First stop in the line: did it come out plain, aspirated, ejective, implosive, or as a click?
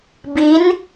plain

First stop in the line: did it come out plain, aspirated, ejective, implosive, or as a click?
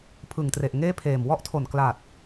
aspirated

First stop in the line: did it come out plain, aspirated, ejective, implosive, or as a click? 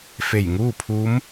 aspirated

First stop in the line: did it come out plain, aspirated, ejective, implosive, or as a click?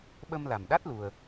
implosive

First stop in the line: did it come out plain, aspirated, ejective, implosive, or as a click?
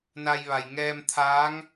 aspirated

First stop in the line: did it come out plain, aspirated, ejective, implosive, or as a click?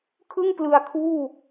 aspirated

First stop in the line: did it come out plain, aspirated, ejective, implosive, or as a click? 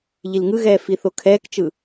aspirated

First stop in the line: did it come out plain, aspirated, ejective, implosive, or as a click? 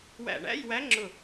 click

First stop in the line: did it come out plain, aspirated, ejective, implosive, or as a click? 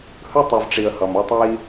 plain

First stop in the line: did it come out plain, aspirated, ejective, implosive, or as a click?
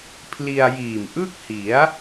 aspirated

